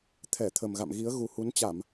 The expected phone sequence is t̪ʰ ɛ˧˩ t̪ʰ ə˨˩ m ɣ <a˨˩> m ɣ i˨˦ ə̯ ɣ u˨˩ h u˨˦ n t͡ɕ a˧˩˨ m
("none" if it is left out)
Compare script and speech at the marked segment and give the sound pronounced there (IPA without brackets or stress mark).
a̰˧˨